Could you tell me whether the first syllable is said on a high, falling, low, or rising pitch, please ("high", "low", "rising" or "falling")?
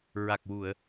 low